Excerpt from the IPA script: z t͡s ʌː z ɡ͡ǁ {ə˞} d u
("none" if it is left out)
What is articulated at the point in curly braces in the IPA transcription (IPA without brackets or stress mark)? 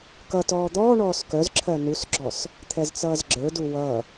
ə˞